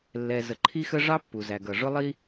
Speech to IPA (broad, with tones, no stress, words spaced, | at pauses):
lːɛ˩ zə˩ǃʰi˥xə˥ ʐɑ˥pːu˩ zæ˩ɡʌ˩ʐʊ˥lˠi˥